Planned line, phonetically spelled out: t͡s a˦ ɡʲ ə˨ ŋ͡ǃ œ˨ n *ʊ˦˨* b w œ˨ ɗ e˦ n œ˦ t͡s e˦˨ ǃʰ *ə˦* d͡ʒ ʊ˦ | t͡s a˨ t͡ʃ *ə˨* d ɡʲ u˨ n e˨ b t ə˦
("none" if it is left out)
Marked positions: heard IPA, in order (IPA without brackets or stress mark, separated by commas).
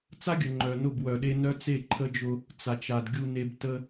ʊ˦˨, ə˦, a˨